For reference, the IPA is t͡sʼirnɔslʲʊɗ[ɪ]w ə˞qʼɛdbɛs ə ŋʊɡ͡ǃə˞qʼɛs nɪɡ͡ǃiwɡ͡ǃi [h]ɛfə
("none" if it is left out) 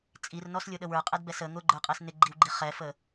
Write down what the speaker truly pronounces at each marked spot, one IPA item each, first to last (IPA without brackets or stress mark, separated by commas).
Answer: ə, χ